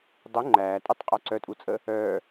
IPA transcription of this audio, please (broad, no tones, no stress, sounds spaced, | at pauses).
dˤ u ŋ͡ǃ æː tʼ u tˤ qʼ œ ǀ œ tʼ u t͡sʼ ə | œː